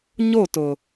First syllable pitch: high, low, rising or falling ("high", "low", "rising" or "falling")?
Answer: falling